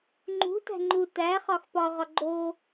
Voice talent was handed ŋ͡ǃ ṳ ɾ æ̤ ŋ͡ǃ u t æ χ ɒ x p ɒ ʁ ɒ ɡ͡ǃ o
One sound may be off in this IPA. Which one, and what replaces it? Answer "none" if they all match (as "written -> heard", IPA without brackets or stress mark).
ɾ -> t